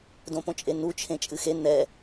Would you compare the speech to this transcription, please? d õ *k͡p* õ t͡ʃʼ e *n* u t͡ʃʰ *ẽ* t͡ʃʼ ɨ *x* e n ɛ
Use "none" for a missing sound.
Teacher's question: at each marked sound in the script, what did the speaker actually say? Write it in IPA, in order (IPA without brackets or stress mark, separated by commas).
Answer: p, n, ẽ, x